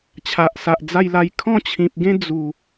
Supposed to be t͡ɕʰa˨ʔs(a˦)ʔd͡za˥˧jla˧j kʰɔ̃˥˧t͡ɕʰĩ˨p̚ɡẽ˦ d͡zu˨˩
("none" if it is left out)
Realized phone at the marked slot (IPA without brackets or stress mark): a˨